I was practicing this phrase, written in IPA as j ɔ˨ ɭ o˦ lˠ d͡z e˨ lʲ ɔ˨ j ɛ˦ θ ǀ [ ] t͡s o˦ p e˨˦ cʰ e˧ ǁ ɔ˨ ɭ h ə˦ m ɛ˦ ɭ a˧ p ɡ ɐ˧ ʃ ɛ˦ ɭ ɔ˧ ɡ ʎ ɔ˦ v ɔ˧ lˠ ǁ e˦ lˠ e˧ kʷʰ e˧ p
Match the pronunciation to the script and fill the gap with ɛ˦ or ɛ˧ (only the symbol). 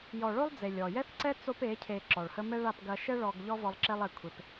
ɛ˦